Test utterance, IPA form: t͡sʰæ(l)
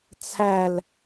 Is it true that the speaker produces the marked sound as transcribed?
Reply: yes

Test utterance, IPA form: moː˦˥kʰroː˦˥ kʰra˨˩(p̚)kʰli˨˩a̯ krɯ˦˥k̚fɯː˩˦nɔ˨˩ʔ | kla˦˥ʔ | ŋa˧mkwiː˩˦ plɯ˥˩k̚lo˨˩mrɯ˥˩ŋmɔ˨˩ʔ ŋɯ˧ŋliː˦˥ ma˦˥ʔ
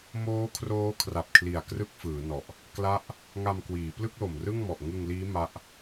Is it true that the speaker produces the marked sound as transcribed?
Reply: yes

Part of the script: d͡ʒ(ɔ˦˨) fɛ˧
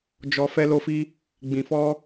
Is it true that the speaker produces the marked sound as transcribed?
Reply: no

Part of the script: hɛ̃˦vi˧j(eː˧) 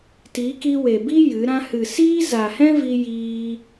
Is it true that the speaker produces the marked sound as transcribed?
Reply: no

